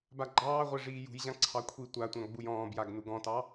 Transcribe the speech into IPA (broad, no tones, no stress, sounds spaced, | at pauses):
b a ɡ͡ǃ ɑː ʁʷ ɛ ʐ iː j ṳ j ʑ ã ǀʰ ɑ kʷʰ i tʷ a tʷ ã ɡ͡b u j ɔ̃ː b j a ɡ n u ɡ ɔ̃ t ɑ